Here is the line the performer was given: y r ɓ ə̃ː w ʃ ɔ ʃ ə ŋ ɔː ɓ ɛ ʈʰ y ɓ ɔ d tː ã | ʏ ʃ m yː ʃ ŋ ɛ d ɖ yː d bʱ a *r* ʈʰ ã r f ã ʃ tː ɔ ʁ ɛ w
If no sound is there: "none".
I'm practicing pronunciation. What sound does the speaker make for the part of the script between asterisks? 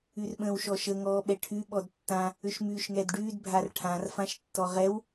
r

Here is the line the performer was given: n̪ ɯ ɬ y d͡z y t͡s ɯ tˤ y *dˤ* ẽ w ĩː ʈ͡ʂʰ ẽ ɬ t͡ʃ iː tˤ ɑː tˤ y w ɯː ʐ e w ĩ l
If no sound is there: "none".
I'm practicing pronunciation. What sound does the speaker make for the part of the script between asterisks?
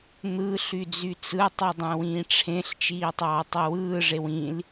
dˤ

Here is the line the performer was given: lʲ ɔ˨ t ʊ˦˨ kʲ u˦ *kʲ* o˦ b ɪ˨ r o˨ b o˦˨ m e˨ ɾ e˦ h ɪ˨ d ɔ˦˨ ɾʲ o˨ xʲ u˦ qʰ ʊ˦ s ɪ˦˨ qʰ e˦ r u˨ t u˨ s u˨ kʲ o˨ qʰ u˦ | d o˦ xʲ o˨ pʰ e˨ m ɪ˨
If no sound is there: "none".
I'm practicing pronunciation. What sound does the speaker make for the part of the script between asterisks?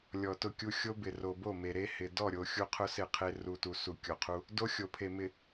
xʲ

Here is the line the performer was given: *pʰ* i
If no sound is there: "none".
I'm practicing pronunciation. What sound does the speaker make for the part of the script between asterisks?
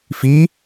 f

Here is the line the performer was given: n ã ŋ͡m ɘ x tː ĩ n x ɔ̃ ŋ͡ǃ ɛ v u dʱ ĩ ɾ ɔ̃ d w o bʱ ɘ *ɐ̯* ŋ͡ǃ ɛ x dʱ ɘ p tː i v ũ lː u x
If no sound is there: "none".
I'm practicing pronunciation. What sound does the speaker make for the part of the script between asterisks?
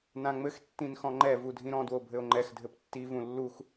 o̯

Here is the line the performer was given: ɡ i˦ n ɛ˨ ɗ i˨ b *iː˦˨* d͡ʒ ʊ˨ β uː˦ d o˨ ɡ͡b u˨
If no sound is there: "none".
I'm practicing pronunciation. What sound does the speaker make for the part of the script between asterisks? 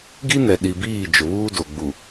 iː˦˨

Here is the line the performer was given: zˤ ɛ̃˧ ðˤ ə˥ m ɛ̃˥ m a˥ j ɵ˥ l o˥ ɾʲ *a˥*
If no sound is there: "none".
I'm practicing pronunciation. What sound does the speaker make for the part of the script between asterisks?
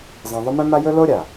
a˩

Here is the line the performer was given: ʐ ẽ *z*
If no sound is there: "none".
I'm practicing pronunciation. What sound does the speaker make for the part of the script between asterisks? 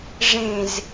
z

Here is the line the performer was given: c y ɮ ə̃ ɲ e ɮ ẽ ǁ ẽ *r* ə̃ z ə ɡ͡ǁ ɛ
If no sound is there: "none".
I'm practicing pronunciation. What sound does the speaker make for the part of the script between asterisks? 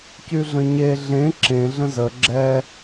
ɮ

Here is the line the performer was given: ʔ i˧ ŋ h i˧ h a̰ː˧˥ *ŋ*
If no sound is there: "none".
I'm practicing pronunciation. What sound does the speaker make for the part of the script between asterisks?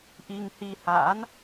n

